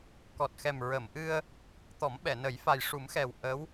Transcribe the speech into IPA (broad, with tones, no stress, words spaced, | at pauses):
kɔ˨˩t̚xɛ˨˩mɹə˨˩˨mʔɨ˧ə̯ | t̪ɔ˨˩˦mɓɛ˨˩˨ nə˨˩˦j fa˨˩jʂu˨˩˦mxɛ˨˩w ʔə˧˥w